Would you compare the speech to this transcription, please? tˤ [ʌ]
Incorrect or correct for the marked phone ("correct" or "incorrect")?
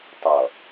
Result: correct